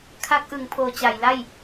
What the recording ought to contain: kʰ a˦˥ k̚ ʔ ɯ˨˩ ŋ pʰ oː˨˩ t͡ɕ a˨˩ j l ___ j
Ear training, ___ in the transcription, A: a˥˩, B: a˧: A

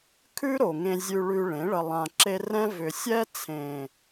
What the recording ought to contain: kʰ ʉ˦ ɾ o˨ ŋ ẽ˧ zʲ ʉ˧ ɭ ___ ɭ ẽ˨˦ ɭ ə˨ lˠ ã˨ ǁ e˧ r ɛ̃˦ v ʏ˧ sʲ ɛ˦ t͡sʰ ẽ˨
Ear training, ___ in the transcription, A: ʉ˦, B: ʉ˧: B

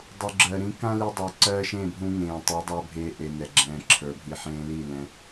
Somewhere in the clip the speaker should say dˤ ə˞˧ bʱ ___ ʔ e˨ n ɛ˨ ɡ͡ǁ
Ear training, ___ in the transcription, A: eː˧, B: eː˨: A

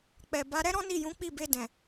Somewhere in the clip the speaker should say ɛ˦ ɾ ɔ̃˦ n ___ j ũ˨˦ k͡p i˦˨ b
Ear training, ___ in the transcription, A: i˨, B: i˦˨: B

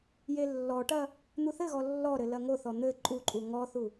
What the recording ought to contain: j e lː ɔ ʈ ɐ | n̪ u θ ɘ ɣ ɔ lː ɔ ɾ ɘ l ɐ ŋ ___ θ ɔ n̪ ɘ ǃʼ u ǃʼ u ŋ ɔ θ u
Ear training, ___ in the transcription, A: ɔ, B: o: B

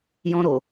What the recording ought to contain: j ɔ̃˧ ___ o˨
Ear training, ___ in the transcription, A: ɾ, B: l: A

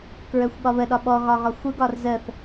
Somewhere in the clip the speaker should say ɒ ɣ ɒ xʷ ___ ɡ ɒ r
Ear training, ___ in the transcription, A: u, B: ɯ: B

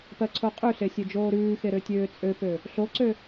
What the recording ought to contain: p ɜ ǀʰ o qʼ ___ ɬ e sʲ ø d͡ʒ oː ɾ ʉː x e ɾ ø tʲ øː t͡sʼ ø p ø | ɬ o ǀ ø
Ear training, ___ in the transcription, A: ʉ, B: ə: A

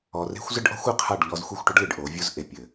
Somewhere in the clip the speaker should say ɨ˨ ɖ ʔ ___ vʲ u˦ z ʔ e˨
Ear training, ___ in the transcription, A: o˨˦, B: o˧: A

